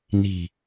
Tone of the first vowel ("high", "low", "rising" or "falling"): low